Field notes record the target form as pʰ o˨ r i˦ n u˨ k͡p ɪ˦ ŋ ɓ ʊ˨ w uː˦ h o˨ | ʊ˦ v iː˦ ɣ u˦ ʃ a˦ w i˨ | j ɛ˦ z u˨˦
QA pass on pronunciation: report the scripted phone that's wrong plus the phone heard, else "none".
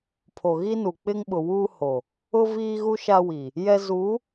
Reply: r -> ɣ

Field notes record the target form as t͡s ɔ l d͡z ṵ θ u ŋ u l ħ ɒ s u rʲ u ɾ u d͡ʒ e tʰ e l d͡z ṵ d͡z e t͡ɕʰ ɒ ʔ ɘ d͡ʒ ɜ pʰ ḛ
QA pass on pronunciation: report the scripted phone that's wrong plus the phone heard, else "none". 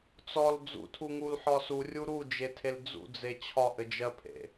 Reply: θ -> tʰ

